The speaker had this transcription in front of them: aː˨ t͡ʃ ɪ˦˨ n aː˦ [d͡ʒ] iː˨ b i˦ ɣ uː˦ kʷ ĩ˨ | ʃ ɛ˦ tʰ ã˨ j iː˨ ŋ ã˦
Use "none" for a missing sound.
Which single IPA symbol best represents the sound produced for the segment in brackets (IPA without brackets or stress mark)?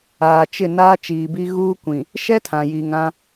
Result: t͡ʃ